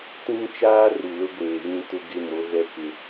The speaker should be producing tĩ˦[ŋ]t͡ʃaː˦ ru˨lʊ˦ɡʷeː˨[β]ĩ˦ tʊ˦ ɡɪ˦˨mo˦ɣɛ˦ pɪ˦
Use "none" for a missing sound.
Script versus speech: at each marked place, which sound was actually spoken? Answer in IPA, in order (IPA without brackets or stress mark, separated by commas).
ŋ, β